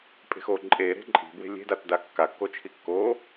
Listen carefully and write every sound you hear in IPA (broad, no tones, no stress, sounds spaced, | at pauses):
pʼ e̤ x o ǃʼ e ɾ e̤ ǃʼ i̤ b w e̤ lʲ e̤ d a t d a kː a kː o t͡ʃʰ i kː o